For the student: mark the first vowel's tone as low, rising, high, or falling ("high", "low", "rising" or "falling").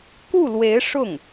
falling